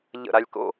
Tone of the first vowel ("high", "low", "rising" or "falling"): falling